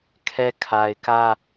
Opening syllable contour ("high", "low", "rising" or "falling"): high